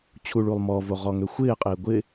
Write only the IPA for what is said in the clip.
t͡ɕʰ u ɭ u lˠ m ɔ v o ʁ ɔ ŋ ø xʷ ɪː qʼ ɪː ɡʷ ɪ

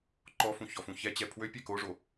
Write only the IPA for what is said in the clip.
ǃ ɔ f ũ ç ɔ f ũ ç ɛ t͡ɕ ɛ pʰ w ø pʲ ɛ k o ʐ o

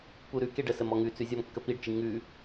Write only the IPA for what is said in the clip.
p u ɾ ʉ k e ɖ ə s ə m ɔ ŋ ʉ t͡s ʉ zʲ ɔ m kː ə p i ɖ t͡ʃ i ŋ ʉ

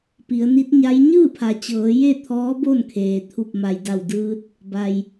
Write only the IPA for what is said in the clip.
p i˩˧ ə̯ n i˧˥ t̚ ɲ a˧˥ j ɲ ɯː˥˨ pʰ a˩ t͡ɕ ɤː˩˧ j e˥˨ t̪ʰ ɔː˧˥ b o˥˨ n kʰ eː˩ t̪ʰ u˧˩ p̚ m a˩ j d a˧˩ w d ɯː˧ t̚ | b a˩ j

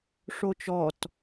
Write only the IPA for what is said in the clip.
ʂ o t͡ʃ ɔ t

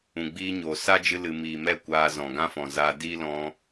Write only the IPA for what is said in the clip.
ũ˨ ɡ͡b iː˦ ɲ oː˨ s a˦ d͡ʒ ɨ˧ l ɨ˨ m iː˨ m ɛ˦˨ kʷ aː˧ z ɔ̃˨ ɡ ã˦ f ɔ̃˨ z aː˧ d iː˦ l ɔ̃˧

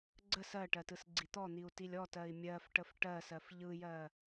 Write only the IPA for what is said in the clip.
ɡ͡ǀ ə s ɜ ʈ ɜ t ɯ s ɡ͡ǀ i t̪ ɔ n̪ i u̯ t i lʲ ɔ t ɜ i̯ mʲ ɜ f ʈ ə f ʈ ɜ s ɜ f ʎ ɯ j ɜ

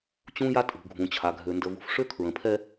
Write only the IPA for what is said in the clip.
t͡ɕ ũ˦ j a˦ tʼ ṳ˨ ɡʱ ũ˨ t͡ɕʰ a˨ ɡʱ ø˨ n d ə˨ v ṳ˨ f ʂ ø˦ kʰ ɹ ə̃˨ pʰ ɛ˦

